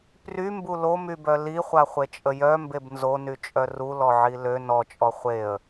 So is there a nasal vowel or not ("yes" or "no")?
no